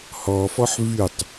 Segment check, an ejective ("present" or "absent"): absent